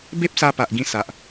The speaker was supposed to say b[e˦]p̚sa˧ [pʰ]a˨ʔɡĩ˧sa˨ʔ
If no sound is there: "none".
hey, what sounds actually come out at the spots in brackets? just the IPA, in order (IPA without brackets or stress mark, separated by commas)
e˦, p